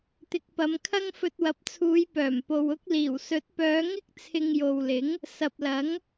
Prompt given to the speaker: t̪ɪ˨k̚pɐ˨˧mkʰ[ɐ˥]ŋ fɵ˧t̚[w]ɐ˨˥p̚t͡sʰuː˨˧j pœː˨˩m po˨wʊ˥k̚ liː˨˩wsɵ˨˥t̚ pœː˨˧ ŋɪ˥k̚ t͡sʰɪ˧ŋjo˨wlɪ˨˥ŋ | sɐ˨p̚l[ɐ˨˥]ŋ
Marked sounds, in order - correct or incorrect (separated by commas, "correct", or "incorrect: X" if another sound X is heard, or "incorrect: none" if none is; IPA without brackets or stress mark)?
correct, correct, correct